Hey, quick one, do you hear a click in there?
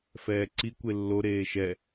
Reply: yes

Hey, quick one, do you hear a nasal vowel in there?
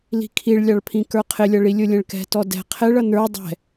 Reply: yes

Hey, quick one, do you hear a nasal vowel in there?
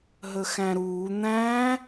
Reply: yes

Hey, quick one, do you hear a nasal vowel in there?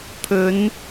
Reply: no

